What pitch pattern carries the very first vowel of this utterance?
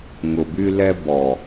low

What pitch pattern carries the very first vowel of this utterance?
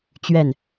falling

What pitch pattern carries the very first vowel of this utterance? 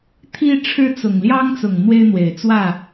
high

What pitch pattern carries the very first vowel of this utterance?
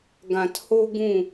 low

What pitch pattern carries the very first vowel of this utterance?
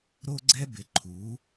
high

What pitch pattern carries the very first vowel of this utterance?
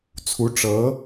rising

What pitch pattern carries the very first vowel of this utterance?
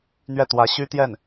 falling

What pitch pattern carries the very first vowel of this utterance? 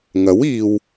rising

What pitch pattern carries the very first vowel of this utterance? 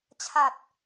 low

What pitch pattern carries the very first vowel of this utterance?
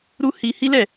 high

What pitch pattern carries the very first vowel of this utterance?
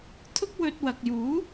high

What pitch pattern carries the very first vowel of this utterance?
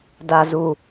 low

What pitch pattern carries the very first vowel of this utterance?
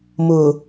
low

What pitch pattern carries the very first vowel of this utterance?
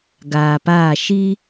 low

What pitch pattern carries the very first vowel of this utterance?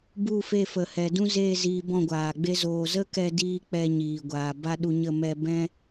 falling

